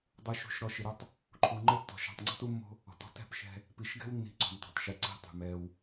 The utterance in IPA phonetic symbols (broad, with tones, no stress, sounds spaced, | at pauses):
dˤ u˨ ʃ ṳ˨ ʃ ɾ ɔ˨ ʃ i˨ ɾ o˦ tˤ | ǃʰ u˨ ŋ͡ǃ ɘ˦ tː ɔ̤˨ ʃ ɔ̤˨ tˤ ŋ͡ǀ ɔ̤˦ t u˦ mː o̤˦ | ɔ̤˨ t ɔ̤˦ t ɛ̤˨ p ʃ ɛ̤˦ | p i˨ ʃ ɡ ɛ̤˦ w nː i̤˨ ǀ ɔ̤˨ m tˤ ṳ˨ tˤ ʃ ɨ˨ ǀ i̤˦ tˤ ṳ˨ m ɛ˦ w